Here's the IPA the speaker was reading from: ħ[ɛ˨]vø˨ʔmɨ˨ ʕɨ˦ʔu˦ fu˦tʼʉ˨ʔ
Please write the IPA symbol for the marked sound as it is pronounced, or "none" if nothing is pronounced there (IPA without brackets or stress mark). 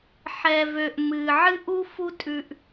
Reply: ɛ˨